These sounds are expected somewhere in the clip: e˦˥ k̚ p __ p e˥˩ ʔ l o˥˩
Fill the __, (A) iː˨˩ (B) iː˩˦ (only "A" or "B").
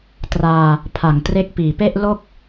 A